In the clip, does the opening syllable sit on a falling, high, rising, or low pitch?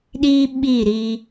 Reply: high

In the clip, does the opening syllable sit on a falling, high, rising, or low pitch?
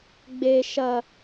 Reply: high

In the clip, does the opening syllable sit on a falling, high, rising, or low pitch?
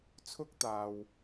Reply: high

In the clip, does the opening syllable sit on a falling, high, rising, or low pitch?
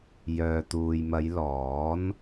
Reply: low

